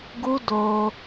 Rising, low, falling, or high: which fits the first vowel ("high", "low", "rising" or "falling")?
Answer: high